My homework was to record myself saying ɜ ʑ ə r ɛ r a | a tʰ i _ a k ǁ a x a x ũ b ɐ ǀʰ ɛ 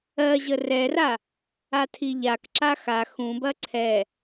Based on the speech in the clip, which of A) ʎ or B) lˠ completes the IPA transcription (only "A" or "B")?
A